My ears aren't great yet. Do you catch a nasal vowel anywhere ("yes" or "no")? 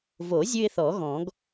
yes